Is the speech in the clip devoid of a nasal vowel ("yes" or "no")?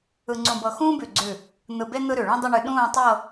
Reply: no